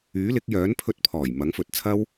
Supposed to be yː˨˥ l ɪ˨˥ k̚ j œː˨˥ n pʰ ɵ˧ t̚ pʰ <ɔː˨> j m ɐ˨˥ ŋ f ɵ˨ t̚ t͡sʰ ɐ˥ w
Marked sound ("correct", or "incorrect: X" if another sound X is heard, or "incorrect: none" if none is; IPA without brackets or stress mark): incorrect: ɔː˨˩